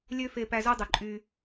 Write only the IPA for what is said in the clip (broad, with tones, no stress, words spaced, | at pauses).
lʲø˦ fe˧pæ˧zo˦ dˤo˨ǃʼy˧